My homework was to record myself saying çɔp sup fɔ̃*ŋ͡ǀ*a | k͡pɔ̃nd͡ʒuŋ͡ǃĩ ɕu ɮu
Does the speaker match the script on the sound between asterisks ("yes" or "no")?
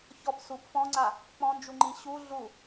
yes